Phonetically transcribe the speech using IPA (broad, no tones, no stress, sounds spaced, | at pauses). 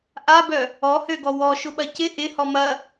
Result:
ʔ a b œ | ɔ h ø ɡ ɔ w ɔ ʃ ʊ ɓ ɐ c ɪ ʔ ɪ h ɔ m ɐ